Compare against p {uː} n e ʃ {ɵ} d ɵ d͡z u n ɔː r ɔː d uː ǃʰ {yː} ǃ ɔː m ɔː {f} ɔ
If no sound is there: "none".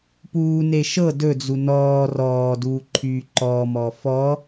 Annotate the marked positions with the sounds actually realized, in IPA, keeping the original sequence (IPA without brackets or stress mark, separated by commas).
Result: uː, ɤ, yː, f